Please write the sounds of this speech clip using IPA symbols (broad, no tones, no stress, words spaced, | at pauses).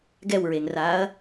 ɡɛwɹeŋraːɐ̯